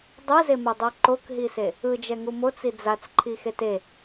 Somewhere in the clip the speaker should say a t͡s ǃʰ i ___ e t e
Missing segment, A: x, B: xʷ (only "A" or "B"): A